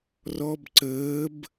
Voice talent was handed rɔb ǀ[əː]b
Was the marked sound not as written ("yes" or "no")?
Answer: no